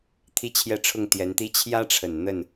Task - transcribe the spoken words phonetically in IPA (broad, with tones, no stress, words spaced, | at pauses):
t̪ʰi˥t͡ɕʰjɛ˥˧ʈ͡ʂʰʊ˥˩ŋ t̪jɛ˧˥nt̪i˥ t͡ɕʰjä˥ʈ͡ʂʰə˨˩n n̪ə˥˩n